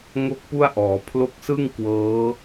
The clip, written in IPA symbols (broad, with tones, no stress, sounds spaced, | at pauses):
ŋ o˥˩ k̚ p u˥˩ a̯ ʔ ɔː˩˦ pʰ l o˦˥ k̚ s ɯ˥˩ ŋ k w ɤː˦˥